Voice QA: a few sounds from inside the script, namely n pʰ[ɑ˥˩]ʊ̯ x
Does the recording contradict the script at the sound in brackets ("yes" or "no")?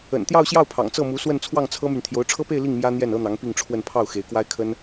no